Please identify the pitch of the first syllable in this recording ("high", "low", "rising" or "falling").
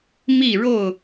falling